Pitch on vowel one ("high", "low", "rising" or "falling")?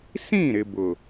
falling